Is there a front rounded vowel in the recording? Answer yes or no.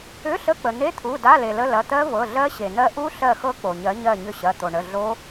yes